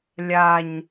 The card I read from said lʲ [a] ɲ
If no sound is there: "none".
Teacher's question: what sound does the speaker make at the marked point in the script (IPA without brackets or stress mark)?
a